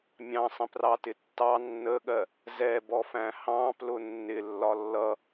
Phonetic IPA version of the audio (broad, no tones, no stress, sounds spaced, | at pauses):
mʲ ɑ̃ sˤ ə̃ p r ɑ t ɪ tː ɑ nː ə ɠ ɜ | z ɛ b ɔ f æ̃ h ɑ̃ p l ʊ nː ɪ lː ɒ lː ʌ